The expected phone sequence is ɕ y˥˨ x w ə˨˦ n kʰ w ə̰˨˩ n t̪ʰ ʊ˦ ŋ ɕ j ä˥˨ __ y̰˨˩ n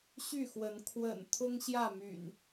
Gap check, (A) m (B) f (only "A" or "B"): A